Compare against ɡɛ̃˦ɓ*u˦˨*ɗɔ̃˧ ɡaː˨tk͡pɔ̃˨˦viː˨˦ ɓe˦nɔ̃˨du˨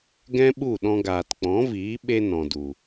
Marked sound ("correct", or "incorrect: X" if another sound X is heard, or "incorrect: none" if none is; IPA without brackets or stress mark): correct